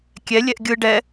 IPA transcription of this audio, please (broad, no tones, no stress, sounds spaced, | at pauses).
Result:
kʲ ɛ lʲ ɛ ʔ ɡʲ ɯ ɖ ɛ